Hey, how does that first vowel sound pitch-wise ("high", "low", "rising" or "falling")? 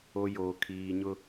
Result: low